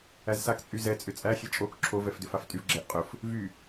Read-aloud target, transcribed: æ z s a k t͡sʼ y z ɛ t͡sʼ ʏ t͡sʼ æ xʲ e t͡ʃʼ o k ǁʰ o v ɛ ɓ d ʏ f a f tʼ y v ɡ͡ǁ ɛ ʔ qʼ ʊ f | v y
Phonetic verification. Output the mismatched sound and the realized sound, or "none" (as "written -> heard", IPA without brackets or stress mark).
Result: ɓ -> f